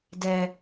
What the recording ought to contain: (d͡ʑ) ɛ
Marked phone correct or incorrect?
incorrect